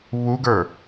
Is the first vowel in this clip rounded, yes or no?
yes